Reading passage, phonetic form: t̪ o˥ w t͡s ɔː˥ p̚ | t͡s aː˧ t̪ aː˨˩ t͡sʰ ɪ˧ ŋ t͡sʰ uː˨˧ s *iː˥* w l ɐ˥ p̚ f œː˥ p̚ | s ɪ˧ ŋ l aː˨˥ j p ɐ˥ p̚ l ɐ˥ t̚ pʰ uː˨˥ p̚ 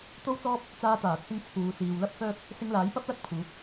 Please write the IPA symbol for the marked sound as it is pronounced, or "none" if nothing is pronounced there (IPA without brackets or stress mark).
iː˨